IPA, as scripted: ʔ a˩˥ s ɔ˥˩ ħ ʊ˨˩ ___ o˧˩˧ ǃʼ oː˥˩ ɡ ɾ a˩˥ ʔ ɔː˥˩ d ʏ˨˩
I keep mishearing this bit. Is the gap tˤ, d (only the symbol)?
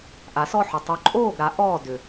tˤ